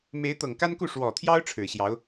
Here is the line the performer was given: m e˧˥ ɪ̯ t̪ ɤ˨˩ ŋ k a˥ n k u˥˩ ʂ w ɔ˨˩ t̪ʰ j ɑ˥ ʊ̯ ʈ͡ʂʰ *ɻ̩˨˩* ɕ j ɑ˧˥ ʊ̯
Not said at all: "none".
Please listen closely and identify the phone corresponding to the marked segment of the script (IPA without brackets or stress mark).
ɻ̩˨˩